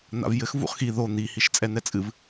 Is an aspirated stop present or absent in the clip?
absent